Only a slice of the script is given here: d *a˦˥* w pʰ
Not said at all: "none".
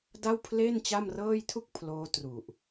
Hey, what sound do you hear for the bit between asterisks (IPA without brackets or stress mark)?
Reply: a˥˩